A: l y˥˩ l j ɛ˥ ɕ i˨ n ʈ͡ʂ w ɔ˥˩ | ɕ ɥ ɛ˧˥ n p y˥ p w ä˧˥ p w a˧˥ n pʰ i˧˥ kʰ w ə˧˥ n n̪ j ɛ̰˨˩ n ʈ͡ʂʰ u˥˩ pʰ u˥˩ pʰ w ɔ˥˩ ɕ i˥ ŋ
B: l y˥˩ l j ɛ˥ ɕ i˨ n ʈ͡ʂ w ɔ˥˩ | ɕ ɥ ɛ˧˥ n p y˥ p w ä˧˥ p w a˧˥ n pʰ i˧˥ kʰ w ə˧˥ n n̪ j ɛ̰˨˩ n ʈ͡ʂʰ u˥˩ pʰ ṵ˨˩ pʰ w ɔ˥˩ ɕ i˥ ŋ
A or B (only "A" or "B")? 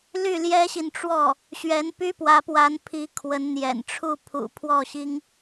B